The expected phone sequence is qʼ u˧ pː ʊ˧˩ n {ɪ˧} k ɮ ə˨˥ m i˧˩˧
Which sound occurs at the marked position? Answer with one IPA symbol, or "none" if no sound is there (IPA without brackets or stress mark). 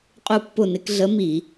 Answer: ɪ˧